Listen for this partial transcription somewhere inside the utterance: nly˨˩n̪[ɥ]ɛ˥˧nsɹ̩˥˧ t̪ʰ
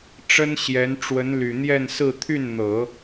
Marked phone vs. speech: incorrect: j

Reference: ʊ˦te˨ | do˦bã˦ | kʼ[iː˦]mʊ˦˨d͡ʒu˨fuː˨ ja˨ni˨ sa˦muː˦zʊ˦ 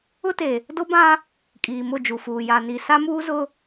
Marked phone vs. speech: incorrect: iː˨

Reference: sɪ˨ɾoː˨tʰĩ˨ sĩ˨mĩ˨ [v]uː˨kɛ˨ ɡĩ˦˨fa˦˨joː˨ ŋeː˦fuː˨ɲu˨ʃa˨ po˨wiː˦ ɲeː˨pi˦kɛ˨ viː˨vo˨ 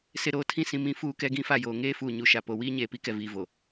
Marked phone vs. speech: incorrect: f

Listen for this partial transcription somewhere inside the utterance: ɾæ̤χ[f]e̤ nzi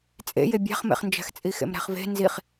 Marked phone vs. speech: incorrect: v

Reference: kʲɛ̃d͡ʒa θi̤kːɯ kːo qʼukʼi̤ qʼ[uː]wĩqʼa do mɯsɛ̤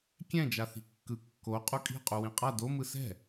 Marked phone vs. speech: incorrect: u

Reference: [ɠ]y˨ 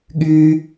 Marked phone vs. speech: correct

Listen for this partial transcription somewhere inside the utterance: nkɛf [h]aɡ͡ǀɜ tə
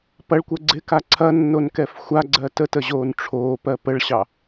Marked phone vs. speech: incorrect: xʷ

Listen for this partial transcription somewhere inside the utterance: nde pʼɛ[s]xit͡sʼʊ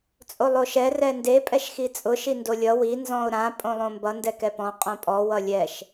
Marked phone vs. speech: incorrect: ʃ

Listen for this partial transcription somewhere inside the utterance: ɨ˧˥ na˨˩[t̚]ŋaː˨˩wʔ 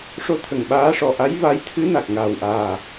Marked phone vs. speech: incorrect: k̚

